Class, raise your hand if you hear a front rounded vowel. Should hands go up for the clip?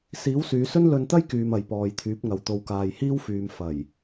yes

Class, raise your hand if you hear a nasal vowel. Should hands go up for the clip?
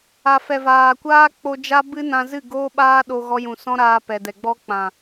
yes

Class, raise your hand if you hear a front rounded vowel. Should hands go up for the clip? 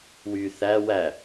yes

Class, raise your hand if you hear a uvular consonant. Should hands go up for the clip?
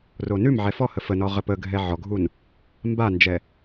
yes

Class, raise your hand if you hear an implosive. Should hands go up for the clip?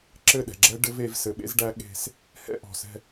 yes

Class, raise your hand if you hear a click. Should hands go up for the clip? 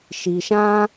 no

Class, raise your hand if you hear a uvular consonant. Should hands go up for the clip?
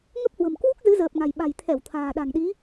no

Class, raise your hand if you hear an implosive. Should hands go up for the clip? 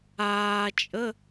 no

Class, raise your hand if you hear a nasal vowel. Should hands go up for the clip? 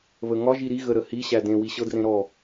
yes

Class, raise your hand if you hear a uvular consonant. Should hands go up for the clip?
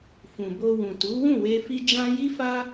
no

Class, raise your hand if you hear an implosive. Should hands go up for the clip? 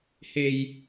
no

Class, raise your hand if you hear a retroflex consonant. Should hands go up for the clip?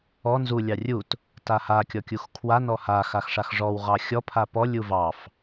yes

